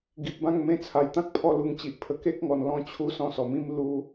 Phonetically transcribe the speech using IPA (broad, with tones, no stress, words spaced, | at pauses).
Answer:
ɡi˨p̚bã˥˧ŋ mẽ˧t͡sʰa˨˩jt̪ã˦k̚pʰɔ˧ lu˧ŋt͡ɕi˨ʔpʰə˦ ke˦k̚ŋɔ˨˩n lɔ̃˥˧t͡ɕʰu˦ sɔ̃˧sɔ˨˩mĩ˦m lu˦